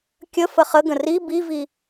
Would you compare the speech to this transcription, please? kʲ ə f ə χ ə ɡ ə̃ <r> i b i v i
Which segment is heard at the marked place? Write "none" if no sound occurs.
r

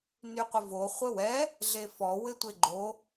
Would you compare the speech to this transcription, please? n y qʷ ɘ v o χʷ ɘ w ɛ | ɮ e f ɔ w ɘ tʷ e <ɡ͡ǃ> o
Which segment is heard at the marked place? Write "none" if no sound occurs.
ɡ͡ǃ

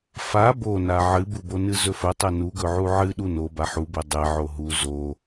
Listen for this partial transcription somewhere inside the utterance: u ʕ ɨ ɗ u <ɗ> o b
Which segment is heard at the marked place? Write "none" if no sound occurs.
n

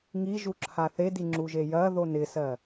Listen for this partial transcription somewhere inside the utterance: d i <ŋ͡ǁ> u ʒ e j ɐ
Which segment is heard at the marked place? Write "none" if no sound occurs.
ŋ͡ǁ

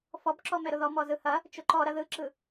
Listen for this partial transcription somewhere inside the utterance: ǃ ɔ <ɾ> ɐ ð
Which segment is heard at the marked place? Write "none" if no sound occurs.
ɾ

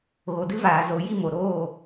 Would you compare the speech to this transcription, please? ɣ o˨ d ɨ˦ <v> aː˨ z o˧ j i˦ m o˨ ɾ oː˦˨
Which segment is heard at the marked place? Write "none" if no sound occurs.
v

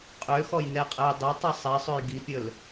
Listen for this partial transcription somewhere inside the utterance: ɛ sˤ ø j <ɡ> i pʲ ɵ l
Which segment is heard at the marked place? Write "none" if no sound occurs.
ɡ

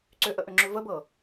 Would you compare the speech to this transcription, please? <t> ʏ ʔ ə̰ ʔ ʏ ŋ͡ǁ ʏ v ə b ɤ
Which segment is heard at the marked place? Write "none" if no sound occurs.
ǀ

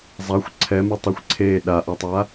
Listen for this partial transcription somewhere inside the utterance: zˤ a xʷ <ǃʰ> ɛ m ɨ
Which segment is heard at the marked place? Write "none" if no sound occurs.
ǀʰ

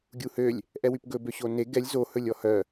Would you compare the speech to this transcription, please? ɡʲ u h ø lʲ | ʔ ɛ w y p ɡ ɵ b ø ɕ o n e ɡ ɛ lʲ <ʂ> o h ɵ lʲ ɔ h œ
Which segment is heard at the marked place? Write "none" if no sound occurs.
z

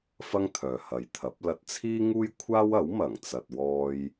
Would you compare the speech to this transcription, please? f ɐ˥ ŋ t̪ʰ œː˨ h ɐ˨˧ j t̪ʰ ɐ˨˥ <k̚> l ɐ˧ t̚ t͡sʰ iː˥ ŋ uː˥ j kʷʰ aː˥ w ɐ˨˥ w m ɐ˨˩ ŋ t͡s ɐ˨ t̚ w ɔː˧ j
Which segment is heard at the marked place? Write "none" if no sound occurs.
p̚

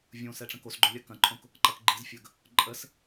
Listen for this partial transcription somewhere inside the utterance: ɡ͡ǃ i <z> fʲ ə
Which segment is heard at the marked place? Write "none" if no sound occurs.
z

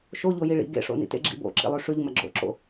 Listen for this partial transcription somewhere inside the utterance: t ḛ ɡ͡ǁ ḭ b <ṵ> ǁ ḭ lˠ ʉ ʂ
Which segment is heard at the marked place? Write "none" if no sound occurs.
o̰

